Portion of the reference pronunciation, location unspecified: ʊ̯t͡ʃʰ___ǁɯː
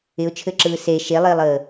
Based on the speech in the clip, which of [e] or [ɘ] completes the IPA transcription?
ɘ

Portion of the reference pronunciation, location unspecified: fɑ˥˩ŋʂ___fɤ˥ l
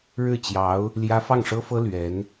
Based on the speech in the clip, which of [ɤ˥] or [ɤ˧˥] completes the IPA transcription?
ɤ˥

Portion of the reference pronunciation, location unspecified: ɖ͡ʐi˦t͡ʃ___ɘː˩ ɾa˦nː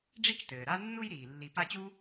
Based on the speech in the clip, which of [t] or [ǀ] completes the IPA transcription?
t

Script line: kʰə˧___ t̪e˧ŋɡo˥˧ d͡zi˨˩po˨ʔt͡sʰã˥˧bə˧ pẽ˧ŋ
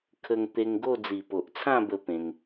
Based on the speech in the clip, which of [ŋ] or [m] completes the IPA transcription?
ŋ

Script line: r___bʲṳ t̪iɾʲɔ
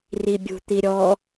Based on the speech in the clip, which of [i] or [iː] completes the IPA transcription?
i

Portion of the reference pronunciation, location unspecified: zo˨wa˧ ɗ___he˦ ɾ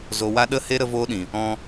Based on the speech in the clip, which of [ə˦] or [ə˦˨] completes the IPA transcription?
ə˦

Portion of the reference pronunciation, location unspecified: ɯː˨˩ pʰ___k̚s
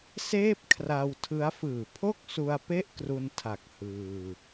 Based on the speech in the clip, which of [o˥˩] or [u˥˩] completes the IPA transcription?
o˥˩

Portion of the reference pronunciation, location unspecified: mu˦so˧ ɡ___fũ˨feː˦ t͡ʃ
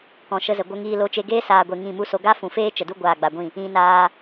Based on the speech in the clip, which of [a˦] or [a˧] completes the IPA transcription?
a˦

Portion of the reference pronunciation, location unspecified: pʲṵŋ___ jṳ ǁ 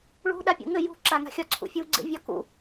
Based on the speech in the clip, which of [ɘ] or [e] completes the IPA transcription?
ɘ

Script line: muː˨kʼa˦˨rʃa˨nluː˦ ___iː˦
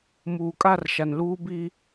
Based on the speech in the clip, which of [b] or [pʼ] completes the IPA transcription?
b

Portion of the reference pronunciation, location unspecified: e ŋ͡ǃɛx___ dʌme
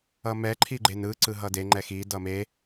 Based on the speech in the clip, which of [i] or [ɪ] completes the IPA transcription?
i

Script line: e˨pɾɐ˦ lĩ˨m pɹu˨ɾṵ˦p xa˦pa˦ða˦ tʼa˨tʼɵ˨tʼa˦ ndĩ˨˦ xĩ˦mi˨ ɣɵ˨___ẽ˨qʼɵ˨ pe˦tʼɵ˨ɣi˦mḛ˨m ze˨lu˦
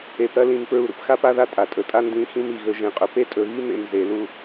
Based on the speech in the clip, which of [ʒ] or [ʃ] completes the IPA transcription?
ʒ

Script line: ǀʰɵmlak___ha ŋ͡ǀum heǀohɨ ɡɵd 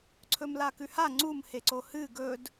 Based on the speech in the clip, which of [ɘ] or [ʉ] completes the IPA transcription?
ʉ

